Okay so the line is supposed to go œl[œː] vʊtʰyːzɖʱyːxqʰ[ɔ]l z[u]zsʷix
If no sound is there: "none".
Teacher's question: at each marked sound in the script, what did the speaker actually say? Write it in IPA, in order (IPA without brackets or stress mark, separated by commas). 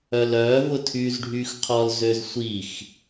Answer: œː, ɔ, ø